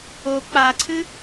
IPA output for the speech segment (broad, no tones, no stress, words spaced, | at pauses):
o k͡paǀʰɨ